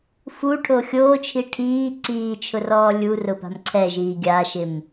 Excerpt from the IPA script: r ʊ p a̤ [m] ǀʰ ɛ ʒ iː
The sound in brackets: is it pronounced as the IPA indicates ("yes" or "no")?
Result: yes